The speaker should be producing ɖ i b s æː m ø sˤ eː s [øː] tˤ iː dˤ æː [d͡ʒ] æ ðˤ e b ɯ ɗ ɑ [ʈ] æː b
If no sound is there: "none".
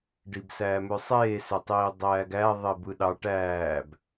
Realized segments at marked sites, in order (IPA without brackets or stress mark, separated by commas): ø, ɡ, ʈ